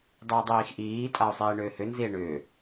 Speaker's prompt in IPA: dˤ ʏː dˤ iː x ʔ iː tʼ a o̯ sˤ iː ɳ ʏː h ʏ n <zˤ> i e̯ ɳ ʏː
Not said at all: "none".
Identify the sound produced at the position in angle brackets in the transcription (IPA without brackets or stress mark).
z